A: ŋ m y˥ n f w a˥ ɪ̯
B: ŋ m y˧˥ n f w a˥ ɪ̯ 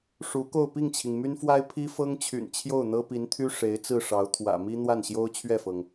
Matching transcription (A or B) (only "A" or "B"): A